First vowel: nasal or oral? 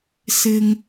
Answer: oral